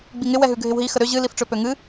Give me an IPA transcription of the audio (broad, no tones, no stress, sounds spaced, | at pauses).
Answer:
ɡ͡b i ŋ ɪ w ɛ ɦ ʉ ɡʱ ɪ w ɦ i x ə ɾ ø ʑ ɨ l i f ʈ͡ʂ ø p ø ŋ ɨ